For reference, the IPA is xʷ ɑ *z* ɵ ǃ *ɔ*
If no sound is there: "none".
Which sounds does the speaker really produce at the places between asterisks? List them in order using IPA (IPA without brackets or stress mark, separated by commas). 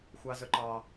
z, ɑ